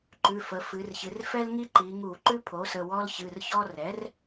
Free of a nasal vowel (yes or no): yes